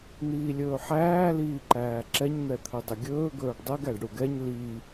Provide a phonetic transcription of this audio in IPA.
n̪ iː lʲ ɵː ħ æː l iː ǃ æː ǁ ɛ ɲ n̪ ɛ t̪ʰ ɵ dˤ ɵ ɡʲ ɵː ɡ ɵː ɖ dˤ ɛ ɡ æ ɖ ɽ u ɡ ɛ ɲ l i

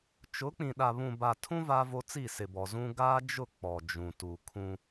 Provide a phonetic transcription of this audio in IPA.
t͡ʃ ʊ˨˦ k͡p ĩ˨ ɗ a˨ β ũ˨ b a˨ tʰ ũ˦ v a˦ v o˦ t͡s i˦˨ s ɪ˨ b ɔ˨ z ũ˦ ɡ aː˦ d͡ʒ ʊ˦˨ k͡p ɔ˨ d͡ʒ ũ˨ t u˨ kʰ ũ˦

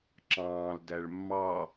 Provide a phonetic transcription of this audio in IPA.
ǁ ɑ̃ː l d æ ɭ mː ɑ

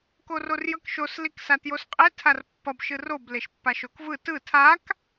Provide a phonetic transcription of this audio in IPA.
k o r o r j ʌ k ʃ o s l i k s a t j o s qʼ e tʰ a r pː ʌ b ʃ ɯ r o b l e ʃ pː a ʃ o k v ɯ t ɯ tʰ a k

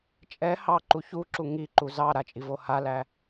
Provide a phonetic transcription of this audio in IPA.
t͡ʃʼ ɛ h ɑ ǃ u ç u ǁ u ŋ i ǃ u z ɑ ɾ a t͡ʃʼ i v o h a l æ

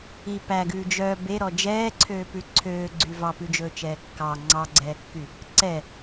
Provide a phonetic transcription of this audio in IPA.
i p æ ɡ ʉː d͡ʒ œ b e ɾ ɔ d͡ʒ ɛː ǀʰ øː p ʉ ǀʰ øː ɡ͡ǀ y v ɑ p ʉ d͡ʒ ɵː t͡ʃ ɛː kː ɑ ŋ͡ǀ ɑ ɡ͡ǀ ɛː kː y | ǀ ɛ

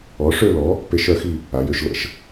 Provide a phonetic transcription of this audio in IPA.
ɔ˨˥ ʂ ø˥˧ l ɔ˨˥ | p e˦˥ ʃ œ˨˥ x i˥˧ | a˨˥ j ø˦˥ ʃ l ə̰˦˥ ʃ

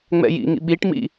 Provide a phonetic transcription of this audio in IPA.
ŋ͡m ɛ̰ j ḭ ŋ ḭ ɓ i ʈ m ḭ

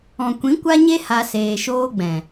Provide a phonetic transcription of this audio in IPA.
ɔ̃˨ kʷ ĩ˨˦ kʷ a˦ ɲ e˦ h a˧ s eː˨ ʃ oː˦ ɡ͡b ɛ̃˨

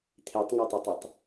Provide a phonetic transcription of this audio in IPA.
t̪ʰ i tˤ ŋ a tˤ e tˤ i tˤ

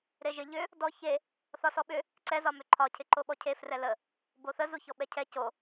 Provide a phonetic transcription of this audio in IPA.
ɾ e ʒ ɪ ʎ ʏ | d ɔ ç e | θ ɒ s ɔ ɓ ʏ | ǀ ɛ z ɒ m ʏ ǃʰ ɒ cʰ ɪ ǃ o ɓ ɔ cʰ e f r ɛ l ə | b o θ ə z u ç ɔ ɓ ɛ cʰ ɛ c o

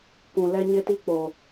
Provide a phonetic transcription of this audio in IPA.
k ũ˨ l ɛ˦ ɲ ɪ˦ t i˦ k͡p o˨

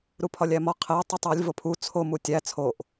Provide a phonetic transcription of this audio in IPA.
ɾ u pʰ ɒ lʲ æ m ɒ qʰ e ə̯ tˤ u tˤ ɒ lʲ v o pʰ u t͡sʰ o m u tʲ æ t͡sʰ o ʔ

